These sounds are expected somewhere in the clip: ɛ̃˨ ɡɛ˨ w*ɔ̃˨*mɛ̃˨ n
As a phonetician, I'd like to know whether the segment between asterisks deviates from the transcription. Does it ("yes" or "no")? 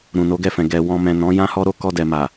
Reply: no